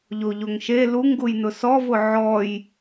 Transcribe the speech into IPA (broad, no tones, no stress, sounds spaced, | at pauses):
ʎ o ʎ o ŋ ʃ e l u ŋ ɡ u j n ʊ s ɔ v ʊ ʕ ɔ j